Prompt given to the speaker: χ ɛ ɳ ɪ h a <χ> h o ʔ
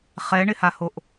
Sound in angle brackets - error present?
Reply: yes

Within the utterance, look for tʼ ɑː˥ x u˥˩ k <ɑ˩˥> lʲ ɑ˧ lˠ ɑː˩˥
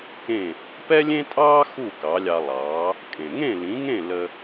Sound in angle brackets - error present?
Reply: no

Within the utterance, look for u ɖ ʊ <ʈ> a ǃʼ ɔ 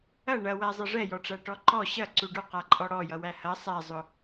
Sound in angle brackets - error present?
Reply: yes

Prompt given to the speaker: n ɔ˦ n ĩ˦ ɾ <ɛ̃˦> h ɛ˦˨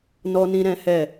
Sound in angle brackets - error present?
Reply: no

